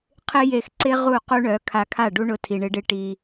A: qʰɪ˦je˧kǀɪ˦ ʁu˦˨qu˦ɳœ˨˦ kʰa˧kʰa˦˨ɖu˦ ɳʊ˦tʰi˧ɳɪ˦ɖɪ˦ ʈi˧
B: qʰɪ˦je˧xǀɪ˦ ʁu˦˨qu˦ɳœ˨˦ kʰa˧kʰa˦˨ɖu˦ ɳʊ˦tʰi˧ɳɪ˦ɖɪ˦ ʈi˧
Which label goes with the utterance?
B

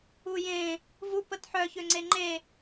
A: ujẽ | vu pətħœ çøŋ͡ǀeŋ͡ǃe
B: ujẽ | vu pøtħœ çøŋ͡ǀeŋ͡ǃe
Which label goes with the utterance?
A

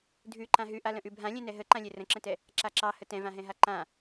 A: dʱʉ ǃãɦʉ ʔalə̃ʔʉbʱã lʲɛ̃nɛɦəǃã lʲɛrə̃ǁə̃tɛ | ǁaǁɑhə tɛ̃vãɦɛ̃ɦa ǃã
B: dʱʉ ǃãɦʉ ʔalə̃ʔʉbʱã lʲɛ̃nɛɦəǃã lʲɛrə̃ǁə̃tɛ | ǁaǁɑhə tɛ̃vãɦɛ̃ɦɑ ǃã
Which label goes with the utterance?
A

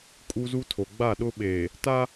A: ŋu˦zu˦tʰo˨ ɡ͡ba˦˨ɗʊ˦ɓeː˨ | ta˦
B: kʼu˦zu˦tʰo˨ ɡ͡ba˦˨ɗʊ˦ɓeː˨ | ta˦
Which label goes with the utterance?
B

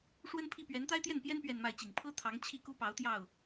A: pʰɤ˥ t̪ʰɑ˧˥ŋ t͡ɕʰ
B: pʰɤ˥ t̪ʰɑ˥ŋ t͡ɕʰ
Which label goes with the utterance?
A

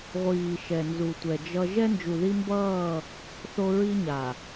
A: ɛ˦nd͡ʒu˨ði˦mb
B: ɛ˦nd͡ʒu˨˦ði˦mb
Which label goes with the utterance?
A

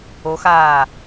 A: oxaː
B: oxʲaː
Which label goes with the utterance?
A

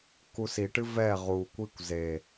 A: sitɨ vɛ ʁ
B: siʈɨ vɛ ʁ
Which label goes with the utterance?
B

